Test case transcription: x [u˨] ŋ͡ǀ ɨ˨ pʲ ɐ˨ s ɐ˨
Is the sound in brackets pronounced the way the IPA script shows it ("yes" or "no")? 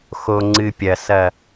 no